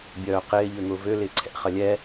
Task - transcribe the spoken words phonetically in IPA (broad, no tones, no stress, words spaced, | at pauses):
bʲœːqɪː ʎøŋʊːvø lɪːǀʰɛ̰ χɐlʲɛ